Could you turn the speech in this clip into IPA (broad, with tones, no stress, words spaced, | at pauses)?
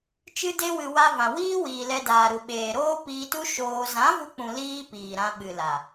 t͡ʃɨ˧de˧wɨ˨ wa˧vã˨wiː˦ wiː˨lɛ˧daː˨ɾu˨ ɓeː˨ɾoː˦ piː˧tu˦ ʃoː˧ zã˨˦vu˧k͡pũ˨ liː˦piː˨ɾã˧ ɓɨ˨la˨